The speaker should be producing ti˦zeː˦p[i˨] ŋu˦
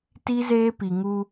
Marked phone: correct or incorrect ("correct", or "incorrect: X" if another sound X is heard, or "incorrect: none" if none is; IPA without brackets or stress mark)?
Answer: correct